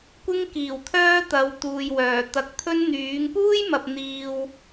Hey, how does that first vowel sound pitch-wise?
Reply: high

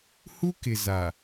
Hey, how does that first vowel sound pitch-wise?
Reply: high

